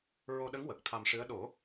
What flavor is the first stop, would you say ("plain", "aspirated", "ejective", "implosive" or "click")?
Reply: implosive